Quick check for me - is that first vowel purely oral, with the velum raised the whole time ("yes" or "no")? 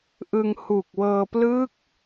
yes